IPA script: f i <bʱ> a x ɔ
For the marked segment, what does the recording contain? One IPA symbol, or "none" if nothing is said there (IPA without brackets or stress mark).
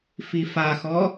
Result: f